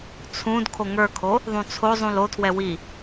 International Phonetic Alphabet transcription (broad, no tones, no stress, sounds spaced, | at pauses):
t͡sʰ ũ d kʰ o ŋ ə˞ kʰ o | ðˤ ũ t͡sʰ o zˤ ũ l o tʰ w ɛ w i